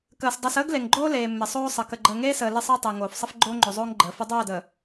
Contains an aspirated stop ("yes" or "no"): no